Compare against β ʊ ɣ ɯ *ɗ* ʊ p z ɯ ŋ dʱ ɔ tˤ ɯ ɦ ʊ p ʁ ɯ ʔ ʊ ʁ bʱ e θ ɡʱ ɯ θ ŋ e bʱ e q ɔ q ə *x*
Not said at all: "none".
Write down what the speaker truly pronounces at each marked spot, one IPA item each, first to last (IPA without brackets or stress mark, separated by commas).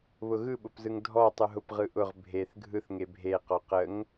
ɓ, ŋ